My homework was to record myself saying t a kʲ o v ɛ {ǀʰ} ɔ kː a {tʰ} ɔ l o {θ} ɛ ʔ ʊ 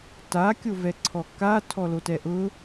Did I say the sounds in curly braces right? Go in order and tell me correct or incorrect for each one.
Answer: correct, correct, incorrect: t

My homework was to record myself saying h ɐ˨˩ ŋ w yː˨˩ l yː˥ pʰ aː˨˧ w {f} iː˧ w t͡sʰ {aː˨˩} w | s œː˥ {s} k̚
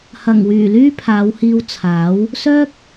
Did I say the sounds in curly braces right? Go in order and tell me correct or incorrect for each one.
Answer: incorrect: h, incorrect: aː˨˥, incorrect: none

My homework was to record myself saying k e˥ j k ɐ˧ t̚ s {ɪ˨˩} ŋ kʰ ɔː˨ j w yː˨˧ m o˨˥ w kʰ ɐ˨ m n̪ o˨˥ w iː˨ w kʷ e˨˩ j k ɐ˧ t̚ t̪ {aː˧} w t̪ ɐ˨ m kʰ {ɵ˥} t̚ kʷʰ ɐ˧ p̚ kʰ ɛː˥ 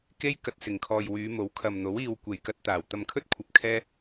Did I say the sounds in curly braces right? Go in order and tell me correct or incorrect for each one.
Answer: correct, incorrect: aː˨˩, correct

